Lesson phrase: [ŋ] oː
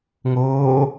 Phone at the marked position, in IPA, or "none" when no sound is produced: ŋ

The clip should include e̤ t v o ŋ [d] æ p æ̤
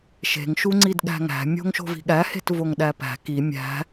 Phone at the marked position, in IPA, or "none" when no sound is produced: ɗ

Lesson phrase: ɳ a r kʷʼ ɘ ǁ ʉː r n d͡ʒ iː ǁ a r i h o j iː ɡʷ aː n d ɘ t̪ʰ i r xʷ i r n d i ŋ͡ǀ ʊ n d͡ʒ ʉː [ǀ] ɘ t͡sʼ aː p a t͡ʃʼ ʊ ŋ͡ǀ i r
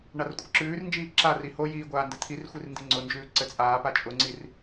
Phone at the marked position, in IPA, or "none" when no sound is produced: ǀ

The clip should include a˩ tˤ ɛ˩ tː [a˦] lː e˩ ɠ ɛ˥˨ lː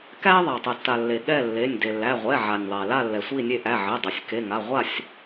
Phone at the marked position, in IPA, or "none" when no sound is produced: a˩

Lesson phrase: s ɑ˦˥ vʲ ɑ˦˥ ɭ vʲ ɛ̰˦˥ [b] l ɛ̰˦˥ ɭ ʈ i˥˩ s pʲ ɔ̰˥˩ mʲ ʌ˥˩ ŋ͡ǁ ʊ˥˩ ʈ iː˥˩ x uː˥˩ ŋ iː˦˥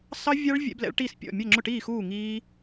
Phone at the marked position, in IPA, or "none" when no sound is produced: b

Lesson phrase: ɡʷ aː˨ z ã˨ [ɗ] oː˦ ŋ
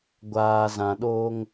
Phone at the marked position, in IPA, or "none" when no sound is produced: ɗ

